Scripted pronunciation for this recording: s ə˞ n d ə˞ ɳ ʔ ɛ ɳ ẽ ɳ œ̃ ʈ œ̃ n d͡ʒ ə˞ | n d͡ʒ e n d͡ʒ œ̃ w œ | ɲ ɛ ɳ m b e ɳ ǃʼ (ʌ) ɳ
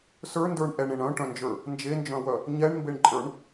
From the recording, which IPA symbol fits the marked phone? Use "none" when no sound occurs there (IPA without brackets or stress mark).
ə˞